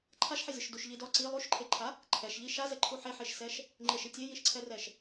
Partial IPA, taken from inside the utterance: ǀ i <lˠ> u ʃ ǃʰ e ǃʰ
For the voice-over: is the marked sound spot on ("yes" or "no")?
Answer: yes